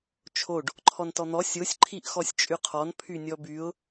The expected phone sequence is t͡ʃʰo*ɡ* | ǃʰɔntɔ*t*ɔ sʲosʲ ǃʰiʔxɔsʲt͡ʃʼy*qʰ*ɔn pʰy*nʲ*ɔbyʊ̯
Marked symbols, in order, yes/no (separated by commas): no, no, yes, yes